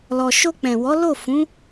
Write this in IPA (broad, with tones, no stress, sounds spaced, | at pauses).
l ɔ˨ ʃ o˧ k͡p ɛ̃˨ w ɔ˨˦ l o˦˨ f ũ˨˦